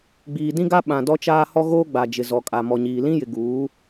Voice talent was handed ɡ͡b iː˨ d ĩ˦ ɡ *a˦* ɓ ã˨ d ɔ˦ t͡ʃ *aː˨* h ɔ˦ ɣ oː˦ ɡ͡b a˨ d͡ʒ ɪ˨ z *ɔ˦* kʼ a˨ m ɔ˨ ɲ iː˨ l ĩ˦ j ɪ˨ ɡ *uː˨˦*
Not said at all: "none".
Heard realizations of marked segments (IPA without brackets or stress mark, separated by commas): a˦, aː˦, ɔ˨, uː˨˦